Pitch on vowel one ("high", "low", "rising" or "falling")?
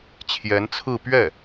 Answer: rising